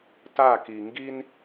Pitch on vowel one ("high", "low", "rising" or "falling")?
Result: falling